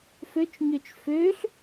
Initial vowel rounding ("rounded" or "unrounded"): rounded